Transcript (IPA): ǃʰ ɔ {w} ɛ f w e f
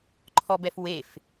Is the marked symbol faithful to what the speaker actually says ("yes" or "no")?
no